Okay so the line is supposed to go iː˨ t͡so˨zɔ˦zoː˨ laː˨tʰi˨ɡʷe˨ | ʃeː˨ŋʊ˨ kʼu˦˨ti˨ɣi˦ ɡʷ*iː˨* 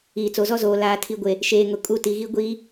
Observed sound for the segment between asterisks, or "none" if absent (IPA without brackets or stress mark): iː˦